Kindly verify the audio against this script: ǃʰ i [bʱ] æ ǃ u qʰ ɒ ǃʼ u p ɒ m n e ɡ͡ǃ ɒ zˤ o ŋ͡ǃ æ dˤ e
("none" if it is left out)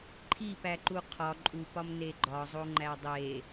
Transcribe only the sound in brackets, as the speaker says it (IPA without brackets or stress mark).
p